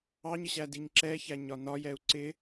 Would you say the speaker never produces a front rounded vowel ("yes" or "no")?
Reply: yes